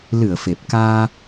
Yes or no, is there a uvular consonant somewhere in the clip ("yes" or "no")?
no